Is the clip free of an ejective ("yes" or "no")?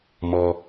yes